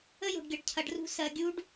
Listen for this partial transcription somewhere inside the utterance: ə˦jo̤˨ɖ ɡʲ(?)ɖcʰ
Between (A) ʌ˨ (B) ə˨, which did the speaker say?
A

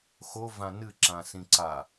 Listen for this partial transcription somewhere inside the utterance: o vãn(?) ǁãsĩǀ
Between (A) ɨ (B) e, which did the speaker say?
A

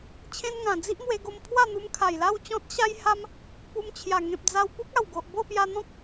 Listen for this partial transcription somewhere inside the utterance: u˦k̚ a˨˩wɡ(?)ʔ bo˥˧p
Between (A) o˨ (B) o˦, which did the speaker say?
A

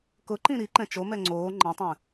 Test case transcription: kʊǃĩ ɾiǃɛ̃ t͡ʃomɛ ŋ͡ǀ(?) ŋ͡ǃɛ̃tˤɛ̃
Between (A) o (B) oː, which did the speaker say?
B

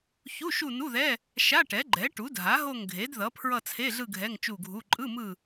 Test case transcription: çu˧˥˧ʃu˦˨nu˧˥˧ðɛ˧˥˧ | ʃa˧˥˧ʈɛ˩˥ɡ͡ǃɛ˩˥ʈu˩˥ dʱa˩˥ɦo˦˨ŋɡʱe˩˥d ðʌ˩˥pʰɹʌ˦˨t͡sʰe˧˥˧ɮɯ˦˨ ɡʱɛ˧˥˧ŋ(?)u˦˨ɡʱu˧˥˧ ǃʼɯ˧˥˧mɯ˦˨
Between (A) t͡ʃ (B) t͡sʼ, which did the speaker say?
A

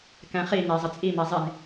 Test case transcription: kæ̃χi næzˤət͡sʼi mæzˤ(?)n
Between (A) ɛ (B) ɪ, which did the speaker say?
B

